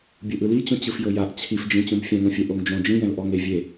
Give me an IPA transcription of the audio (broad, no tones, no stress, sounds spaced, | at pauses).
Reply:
bʲ ɯ ʔ ɯ l i t͡ɕ ũ t͡ɕ ɯ f j ɤ j a ʔ t͡ɕʰ i f d͡ʒ ĩ t͡ɕ ũ b fʲ ɛ̃ ŋ õ fʲ ɛ ʔ o ŋ d͡ʒ õ d͡ʒ ĩ j ɛ̃ l ʔ ɔ ŋ e vʲ e